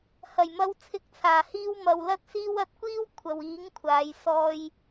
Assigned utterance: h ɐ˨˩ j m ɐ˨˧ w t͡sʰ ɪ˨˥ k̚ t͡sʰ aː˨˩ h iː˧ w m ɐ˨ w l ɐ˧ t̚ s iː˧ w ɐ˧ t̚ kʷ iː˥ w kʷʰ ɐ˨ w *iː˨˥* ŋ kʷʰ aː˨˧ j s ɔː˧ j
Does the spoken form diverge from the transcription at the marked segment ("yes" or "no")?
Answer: no